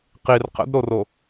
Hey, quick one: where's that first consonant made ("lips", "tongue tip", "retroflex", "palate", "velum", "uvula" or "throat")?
uvula